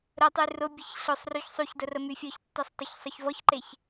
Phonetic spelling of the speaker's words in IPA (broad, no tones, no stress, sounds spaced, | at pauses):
ɾ ə tˤ y r ʊ bʲ ə ç ɬ ʊ sˤ r y ç sˤ u ç d ə r ə m y fʲ ɔ ç tː e sˤ tˤ o ç sˤ œ ç v ɔ ç ǃ e ç